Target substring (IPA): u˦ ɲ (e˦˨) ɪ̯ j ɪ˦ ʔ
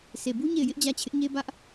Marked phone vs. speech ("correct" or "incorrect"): correct